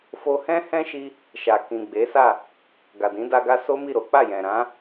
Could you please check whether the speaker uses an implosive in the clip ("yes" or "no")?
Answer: no